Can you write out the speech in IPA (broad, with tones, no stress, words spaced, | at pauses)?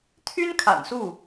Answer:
t̪ʰy˥n kʰa̰˨˩nsu˥˩